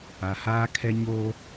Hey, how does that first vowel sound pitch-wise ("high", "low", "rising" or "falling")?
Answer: low